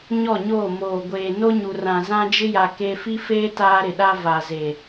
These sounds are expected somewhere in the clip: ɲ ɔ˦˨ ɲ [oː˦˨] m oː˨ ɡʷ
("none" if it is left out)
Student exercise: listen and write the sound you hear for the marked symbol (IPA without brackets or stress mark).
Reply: oː˦˨